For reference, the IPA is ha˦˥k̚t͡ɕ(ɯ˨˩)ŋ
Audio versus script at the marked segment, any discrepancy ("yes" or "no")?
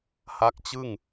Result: yes